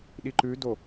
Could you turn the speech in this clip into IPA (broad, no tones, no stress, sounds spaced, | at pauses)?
ɗ i ǃ ʉ d o